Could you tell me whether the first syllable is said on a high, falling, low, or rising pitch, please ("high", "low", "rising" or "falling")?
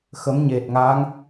rising